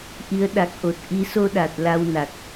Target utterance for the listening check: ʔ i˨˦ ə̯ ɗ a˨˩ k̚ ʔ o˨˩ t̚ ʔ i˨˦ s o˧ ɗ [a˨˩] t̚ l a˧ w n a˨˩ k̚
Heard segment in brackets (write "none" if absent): a˨˩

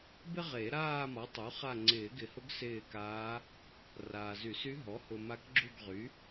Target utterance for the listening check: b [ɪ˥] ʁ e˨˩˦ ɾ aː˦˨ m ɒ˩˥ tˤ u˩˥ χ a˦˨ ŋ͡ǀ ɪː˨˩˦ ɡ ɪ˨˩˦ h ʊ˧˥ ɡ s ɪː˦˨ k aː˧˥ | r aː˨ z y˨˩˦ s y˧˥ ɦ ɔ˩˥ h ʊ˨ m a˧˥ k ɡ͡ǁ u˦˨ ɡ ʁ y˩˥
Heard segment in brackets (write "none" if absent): ɪ˥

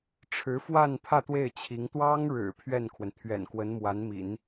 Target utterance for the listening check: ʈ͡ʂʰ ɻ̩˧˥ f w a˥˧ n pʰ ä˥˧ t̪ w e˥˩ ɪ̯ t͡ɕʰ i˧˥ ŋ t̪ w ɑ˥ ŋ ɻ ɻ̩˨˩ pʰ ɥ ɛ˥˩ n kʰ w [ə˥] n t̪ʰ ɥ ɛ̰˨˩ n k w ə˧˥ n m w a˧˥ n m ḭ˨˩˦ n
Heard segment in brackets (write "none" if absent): ə˩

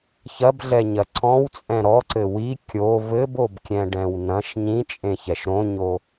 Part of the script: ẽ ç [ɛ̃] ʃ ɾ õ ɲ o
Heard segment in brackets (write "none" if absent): ɛ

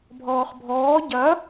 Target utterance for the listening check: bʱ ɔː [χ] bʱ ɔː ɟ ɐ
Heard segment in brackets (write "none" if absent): χ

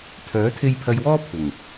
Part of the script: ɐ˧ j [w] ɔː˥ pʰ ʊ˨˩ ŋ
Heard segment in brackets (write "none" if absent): w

